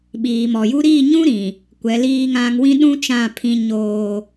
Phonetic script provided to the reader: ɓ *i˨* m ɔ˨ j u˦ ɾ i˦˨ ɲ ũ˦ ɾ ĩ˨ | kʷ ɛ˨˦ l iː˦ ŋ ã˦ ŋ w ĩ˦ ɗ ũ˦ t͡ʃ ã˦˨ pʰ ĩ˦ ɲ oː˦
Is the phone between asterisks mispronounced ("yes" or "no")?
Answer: yes